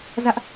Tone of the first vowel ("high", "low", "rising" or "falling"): high